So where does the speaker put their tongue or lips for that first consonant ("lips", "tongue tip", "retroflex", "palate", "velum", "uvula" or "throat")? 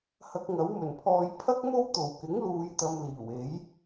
throat